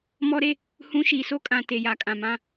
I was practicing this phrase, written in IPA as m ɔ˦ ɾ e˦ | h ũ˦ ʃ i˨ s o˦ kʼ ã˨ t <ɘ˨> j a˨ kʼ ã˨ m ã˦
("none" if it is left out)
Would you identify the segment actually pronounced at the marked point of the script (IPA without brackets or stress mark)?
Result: e˨